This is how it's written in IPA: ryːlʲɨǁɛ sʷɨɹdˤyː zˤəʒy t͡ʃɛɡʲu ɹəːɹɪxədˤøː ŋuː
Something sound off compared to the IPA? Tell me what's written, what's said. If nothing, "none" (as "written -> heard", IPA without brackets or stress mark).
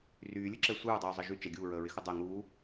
øː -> əː